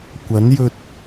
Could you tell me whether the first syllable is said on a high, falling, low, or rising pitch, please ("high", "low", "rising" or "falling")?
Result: rising